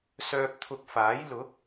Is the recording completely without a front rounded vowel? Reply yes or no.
no